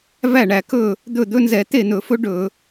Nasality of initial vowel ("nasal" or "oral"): oral